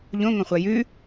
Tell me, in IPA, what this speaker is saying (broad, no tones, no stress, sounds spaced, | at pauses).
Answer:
ʎ õ ŋ õ χʷ a j ʉ